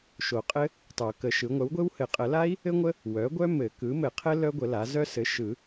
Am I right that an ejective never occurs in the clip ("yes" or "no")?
no